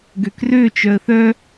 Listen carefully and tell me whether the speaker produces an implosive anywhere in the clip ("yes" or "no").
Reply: no